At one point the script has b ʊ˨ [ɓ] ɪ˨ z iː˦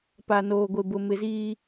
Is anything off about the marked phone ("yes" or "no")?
yes